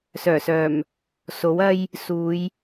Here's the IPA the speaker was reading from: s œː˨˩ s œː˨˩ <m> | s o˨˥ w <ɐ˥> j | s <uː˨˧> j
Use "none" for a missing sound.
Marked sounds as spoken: m, ɐ˥, uː˨˧

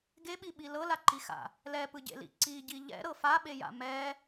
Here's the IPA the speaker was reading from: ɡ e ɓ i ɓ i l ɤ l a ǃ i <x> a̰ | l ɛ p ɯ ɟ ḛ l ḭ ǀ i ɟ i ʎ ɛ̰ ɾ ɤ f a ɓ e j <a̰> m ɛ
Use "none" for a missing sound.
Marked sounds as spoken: x, a̰

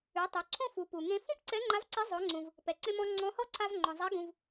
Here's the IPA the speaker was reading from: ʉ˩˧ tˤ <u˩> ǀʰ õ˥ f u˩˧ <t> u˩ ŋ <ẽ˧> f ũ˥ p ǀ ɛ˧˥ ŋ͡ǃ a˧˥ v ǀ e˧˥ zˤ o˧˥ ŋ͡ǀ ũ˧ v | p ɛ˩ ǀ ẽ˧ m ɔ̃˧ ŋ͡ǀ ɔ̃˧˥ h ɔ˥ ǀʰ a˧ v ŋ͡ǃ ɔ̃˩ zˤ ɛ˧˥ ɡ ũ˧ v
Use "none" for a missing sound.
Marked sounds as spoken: u˩˧, p, ẽ˧

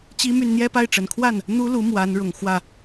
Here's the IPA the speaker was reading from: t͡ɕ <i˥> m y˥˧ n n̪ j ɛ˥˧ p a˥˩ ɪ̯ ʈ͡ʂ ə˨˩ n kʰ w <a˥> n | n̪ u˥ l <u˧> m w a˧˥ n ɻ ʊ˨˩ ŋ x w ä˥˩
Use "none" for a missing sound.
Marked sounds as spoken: i˥, a˥˩, u˧˥

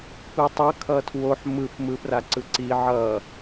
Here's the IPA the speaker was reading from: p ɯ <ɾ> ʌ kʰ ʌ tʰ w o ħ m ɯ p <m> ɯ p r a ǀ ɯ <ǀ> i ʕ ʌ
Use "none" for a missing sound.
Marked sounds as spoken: tˤ, m, ǀ

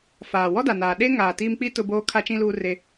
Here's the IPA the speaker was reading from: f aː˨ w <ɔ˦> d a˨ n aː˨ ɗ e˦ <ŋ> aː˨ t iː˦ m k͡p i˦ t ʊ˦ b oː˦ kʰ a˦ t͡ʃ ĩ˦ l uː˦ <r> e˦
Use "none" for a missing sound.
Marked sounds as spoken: ɔ˦, ŋ, r

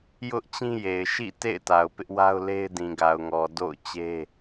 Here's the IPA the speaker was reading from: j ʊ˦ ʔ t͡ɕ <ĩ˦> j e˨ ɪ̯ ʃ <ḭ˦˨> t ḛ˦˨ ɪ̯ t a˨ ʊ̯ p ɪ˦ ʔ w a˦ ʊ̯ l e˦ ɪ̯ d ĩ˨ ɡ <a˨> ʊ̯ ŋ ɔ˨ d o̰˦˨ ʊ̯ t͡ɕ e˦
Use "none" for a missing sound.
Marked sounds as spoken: ĩ˦, ḭ˦˨, a˨

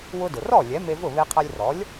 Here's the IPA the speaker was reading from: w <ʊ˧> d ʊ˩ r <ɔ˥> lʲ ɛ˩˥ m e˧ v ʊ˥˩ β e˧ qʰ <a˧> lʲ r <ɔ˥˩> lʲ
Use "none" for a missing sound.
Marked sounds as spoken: ʊ˧, ɔ˥˩, a˧, ɔ˩˥

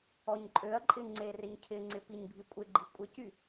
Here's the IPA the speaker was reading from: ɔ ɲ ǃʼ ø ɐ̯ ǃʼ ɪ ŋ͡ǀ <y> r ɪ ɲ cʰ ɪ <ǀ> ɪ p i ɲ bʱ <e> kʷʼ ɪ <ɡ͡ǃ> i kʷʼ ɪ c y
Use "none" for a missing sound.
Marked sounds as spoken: e, ŋ͡ǀ, i, ɡ͡ǃ

